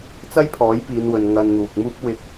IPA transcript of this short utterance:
t͡s ɐ˥ j pʰ ɔː˨˥ j p iː˨˧ n w ɵ˨ n ŋ ɐ˧ n n̪ uː˨ k̚ m uː˥ p̚ w ɪ˨˥ k̚

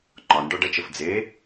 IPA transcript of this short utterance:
ŋ͡ǃ ɒ n ɖ ɒ ɖ ɐ t͡ʃ ə f d͡z e

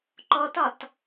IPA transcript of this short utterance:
ǃ ɔ t ɒ t

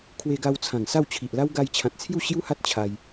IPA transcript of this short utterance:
kʰ w e˧ ɡ a˧ w t͡sʰ ã˨˩ ŋ s a˥˧ w t͡ɕʰ i˨ ʔ l a˦ w ɡ a˧ j t͡ɕʰ ã˨ t̚ t͡sʰ j u˥˧ ɕ j u˦ h a˦ t̚ t͡ɕʰ a˧ j

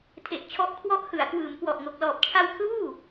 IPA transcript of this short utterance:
tʰ e˨˩ ʔ t͡ɕʰ ɔ˦˥ ʔ kʰ w ɔ˦˥ ʔ h ɯ˩˦ a̯ k w ɯː˩˦ m k w ɔ˨˩ ʔ ŋ o˨˩ k̚ l ɔː˨˩ p̚ t͡ɕʰ a˧ w kʰ l uː˥˩

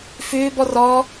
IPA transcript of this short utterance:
f ʏː b ɔ r ɔ

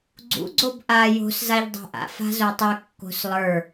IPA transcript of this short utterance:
ɡ͡ǀ ṵ ɡ͡ǀ o b ʔ a j o̤ s z a ʎ dˤ a̤ ʔ a̰ f a̤ z o tˤ ɵ kː o̤ s lˠ ə˞

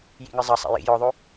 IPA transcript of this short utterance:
j ḭ ŋ ɨ zˤ ɐ sˤ ɛ̰ j ḭ j ɔ ðˤ o

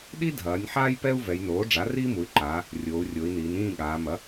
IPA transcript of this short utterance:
ɗ i˦ dʱ ɐː˩˧ nʲ ħ aː˦ j p ɛ˦ u̯ v ɛ˩˧ j n oː˩˥ ɖ͡ʐ a˩˥ r iː˦ m u˩˧ y̯ ǃ aː˩˧ | rʲ oː˩˧ u̯ rʲ o˩˧ i̯ n iː˩˧ n ĩː˥˨ ɠ aː˩˧ m ɐ˩˥

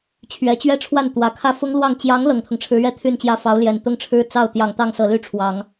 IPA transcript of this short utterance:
t͡ɕʰ ɥ ɛ˧˥ t͡ɕ ɥ ɛ˥˧ ʈ͡ʂʰ w a˥˩ n t̪ w ä˨˩ kʰ ä˥˩ f ʊ˥ ŋ l w ɑ˥˩ ŋ t͡ɕ j ɑ˧˥ ŋ l ɤ˨˩ ŋ t̪ʰ ʊ˦ ŋ ʈ͡ʂʰ ɻ̩˧˥ ɥ ɛ˥˧ t̪ʰ y˥˩ n t͡ɕ j ä˥ f ɑ˧˥ ʊ̯ l j ɛ˨˩ n t̪ ʊ˥ ŋ ʈ͡ʂʰ ɻ̩˥ t͡s ɑ˥˩ ʊ̯ t̪ j ɑ˨˩ ŋ t̪ ɑ˥˩ ŋ s ɤ˨˩ l y˥˩ ʈ͡ʂʰ w ɑ˨˩˦ ŋ

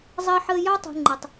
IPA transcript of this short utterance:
zˤ ɜ˦ ħ əː˦ j ɑ˦ tˤ ṳ˨ ŋ͡ǃ ʌ˨ tˤ

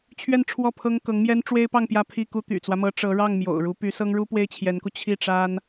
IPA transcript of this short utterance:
t͡ɕʰ ɥ ɛ˥˧ n ʈ͡ʂʰ w ɔ˥˩ pʰ ɤ˥ ŋ k ɤ˧˥ ŋ m j ɛ˥ n ʈ͡ʂ w e˥ ɪ̯ p ɑ˥˧ ŋ p j ä˥˧ pʰ i˥˩ k u˥ t̪ y̰˨˩ t͡s w ä˦ m ɤ˧˥ ʈ͡ʂ ɤ˧˥ ɻ ɑ˥˩ ŋ m j o̰˨˩ ʊ̯ ɻ u˧˥ p y˧˥ s ɤ˥ ŋ ɻ u˥ p w e˥ ɪ̯ t͡ɕʰ j ɛ˧˥ n k u˧ t͡ɕʰ i˥˩ ʈ͡ʂ a˥ n

